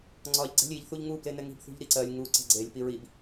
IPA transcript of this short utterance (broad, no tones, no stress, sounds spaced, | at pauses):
ŋ͡ǀ ɒ ʎ ɡ͡ǀ ɛ̤ lʲ i ʎ θ u ʎ ŋ u b l e n ɛ ŋ i̤ b θ ṳ ʎ ɾ i ǀ ɜ lʲ ŋ u ǀ ɛ̤ ɡ͡ǀ e lʲ p i ɹ i b